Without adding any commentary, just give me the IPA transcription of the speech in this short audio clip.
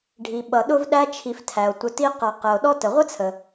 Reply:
ɖʱ i˩ ɓ ʌ˩ ɗ ʊ˦ v ɗ æ˦ t͡ʃʰ i˨ f tʰ æ˩ o̯ tʷ ə˨ t i˦ q ʌ˨ q ə˨ o̯ ɗ ɔ˦ t ə˩ ʁʷ ə˥ t͡sʰ ə˩

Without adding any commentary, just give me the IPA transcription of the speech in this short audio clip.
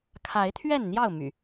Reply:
kʰ a˨˦ ɪ̯ t̪ʰ ɥ ɛ˥˨ n n̪ j ɑ˥˨ ʊ̯ m y̰˨˩

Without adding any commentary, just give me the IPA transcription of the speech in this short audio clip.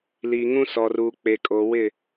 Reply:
l iː˨ ŋ ũ˦ s ɔ˨ r uː˨ k͡p e˨ kʼ oː˨ w ɪ˦˨

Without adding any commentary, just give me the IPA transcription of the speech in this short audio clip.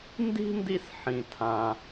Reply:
n d i̤˥ n d i˦ s ħ ĩ˨ tʰ ã˨

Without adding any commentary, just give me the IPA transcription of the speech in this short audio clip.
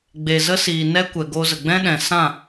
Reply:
ɡ͡b e˨ z ə˦ s iː˨ n ɛ˦ kʷ ɛ˨ ɡ o˧ z ə˨ ɡ͡b ɛ̃˦ ɗ ɛ̃˨ s ã˦˨

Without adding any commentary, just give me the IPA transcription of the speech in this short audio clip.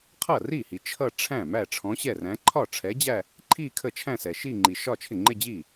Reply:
qʰ ʌ˥˩ r i˥˩ h i˨ t͡ʃʰ ʌ˥˧ ʈ͡ʂʰ æ̃˥˩ m æ˥˩ ʈ͡ʂʰ ɔ̃˨˥ ɕ ɛ˥˩ r æ̃˨˥ ǃʰ ɒ˥˩ ʈ͡ʂʰ ɛ˨˥ d͡ʑ æ˥˧ | ǃʰ i˥˧ kʰ ə˥˩ t͡ʃʰ æ̃˥˧ s ɛ˨ ʃ i˥˧ ŋ͡ǃ i˨ ʃ ɒ˥˧ t͡ʃʰ ɪ˥˩ ŋ͡ǃ ɪ˥˧ d͡ʑ i˥˩

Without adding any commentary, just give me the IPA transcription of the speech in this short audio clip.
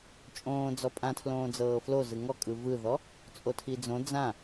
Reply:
t͡ʃʼ õː d͡z ɔ pʼ ã tʰ l õː d͡z ɤː f l o z ɯ ŋ ɔ kʼ ɯ v ɯ ð ɔ | t͡sʼ o tʰ i d͡z õ d͡z ã

